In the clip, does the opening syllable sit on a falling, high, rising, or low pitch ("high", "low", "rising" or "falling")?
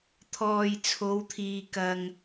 low